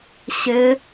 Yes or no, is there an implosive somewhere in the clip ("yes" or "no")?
no